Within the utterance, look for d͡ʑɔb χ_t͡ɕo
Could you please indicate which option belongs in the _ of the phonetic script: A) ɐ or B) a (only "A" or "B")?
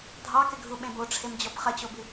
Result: A